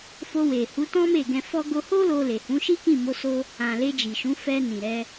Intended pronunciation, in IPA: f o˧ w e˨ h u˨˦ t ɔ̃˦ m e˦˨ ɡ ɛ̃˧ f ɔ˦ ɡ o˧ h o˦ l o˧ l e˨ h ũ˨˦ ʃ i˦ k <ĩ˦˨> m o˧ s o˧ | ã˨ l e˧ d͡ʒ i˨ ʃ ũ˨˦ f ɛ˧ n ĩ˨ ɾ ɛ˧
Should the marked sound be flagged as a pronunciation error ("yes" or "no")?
no